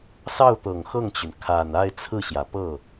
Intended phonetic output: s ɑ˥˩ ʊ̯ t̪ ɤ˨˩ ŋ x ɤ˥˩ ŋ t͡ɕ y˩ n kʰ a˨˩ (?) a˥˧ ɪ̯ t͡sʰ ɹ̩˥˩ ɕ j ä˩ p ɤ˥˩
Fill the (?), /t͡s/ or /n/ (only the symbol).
n